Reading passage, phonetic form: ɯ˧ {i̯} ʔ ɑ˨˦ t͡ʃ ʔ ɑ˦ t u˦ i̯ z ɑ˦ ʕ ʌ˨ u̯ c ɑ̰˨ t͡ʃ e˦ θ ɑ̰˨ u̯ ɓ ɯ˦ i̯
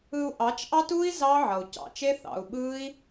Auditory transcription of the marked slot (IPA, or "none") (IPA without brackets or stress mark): u̯